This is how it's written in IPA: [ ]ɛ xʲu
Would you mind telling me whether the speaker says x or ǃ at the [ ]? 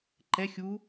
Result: ǃ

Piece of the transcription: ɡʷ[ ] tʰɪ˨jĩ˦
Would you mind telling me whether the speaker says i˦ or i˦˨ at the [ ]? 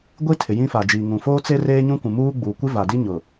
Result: i˦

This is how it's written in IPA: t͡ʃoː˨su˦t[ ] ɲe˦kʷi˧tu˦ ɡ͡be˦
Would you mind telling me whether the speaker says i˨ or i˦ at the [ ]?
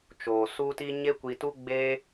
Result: i˦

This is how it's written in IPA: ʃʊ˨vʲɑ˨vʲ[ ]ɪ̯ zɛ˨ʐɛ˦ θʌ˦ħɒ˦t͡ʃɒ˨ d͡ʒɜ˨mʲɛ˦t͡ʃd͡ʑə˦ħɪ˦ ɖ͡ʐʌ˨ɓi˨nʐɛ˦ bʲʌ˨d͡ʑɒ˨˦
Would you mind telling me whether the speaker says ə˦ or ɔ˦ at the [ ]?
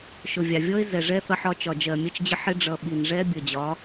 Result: ɔ˦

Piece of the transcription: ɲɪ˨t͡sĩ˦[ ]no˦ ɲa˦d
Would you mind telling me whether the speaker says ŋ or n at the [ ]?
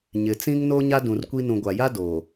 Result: ŋ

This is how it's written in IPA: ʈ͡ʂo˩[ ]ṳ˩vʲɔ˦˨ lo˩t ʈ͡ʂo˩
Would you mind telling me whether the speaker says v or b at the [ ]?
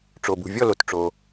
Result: b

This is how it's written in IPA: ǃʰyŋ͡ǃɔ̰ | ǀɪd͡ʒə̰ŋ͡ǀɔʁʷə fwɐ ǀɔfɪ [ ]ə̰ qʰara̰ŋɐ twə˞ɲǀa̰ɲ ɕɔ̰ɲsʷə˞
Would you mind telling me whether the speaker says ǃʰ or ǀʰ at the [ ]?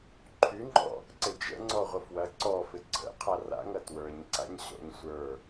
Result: ǀʰ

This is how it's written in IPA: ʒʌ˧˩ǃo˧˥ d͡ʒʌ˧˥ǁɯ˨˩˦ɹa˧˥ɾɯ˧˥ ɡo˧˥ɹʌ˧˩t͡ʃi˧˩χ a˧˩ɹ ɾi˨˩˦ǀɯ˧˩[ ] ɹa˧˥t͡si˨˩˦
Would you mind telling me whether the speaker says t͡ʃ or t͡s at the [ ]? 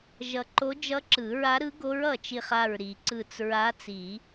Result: t͡s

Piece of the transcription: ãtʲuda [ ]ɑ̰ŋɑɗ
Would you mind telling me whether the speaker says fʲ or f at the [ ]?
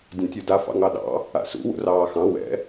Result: f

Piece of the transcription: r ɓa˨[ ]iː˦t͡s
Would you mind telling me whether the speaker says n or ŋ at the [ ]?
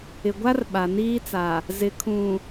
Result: n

